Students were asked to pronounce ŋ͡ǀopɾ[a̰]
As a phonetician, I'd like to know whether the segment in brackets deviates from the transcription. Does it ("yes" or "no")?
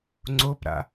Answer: no